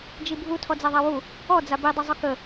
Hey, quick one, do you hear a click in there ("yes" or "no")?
no